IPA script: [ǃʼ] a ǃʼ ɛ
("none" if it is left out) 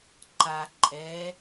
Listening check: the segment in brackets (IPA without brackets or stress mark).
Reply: ǃ